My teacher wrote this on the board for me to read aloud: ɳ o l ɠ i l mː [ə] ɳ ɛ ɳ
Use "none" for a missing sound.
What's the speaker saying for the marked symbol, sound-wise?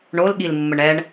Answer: ə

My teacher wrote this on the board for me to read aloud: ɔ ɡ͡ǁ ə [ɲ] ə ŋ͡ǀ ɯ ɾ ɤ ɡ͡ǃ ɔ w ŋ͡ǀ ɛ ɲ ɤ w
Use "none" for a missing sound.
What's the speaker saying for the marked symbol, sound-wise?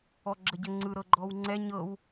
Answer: ɟ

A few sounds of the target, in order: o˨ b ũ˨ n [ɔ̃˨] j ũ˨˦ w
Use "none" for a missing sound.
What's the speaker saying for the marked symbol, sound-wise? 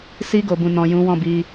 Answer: ɔ̃˨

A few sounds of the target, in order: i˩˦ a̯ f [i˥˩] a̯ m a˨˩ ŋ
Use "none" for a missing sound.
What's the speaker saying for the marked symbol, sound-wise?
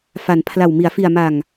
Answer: i˨˩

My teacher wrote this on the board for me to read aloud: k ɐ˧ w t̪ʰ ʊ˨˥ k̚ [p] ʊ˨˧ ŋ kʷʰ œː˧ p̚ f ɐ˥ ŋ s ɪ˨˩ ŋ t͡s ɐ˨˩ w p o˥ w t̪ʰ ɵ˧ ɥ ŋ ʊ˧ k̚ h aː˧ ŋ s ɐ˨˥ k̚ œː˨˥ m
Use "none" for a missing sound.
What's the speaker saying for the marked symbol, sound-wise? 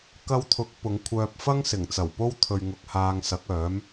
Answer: p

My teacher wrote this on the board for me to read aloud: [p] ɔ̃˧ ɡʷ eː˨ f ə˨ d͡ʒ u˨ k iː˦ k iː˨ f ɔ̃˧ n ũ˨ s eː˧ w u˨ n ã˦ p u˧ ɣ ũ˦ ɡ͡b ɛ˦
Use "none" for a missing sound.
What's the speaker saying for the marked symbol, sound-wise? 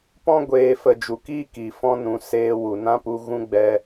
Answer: p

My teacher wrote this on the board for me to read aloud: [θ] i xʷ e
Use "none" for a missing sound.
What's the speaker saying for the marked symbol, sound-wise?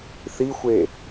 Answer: θ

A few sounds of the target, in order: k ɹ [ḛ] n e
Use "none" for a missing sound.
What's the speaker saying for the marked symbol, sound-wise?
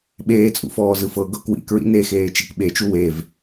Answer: ḭ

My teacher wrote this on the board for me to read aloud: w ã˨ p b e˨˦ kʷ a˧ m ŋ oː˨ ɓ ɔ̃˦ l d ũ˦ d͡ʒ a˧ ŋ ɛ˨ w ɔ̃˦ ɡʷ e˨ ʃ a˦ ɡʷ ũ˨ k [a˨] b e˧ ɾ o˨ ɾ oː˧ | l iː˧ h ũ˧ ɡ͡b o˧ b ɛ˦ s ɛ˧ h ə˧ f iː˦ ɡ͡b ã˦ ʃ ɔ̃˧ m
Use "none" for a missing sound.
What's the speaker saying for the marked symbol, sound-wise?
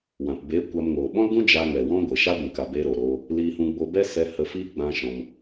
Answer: a˨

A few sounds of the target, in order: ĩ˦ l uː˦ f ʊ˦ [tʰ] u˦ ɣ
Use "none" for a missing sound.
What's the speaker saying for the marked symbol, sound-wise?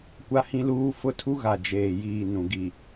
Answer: tʰ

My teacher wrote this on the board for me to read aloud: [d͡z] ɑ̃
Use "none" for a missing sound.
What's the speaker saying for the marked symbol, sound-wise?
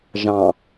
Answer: ʒ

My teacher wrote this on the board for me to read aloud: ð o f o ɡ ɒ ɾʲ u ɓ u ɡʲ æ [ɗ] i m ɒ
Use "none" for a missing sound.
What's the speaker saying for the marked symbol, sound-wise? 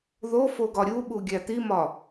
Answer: t̪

